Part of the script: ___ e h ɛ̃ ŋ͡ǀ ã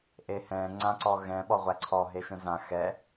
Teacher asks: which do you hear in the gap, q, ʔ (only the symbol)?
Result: ʔ